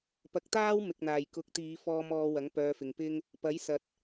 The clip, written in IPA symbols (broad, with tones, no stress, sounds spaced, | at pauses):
p ɐ˨˥ k̚ t̪ aː˥ w m ɪ˨ k̚ n̪ aː˨˩ j k ʊ˨˥ k̚ t̪ iː˨˧ f ɔː˧ m ɔː˧ w ɐ˨˥ ŋ p œː˧ f ɪ˨ ŋ p ɪ˥ ŋ | p ɐ˨˥ j s ɐ˨ t̚